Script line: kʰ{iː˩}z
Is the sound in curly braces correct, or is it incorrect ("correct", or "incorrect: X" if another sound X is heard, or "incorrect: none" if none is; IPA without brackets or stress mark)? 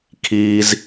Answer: correct